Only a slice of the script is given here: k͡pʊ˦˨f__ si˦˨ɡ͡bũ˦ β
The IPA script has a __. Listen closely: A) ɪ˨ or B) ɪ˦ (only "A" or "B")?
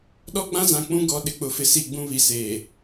B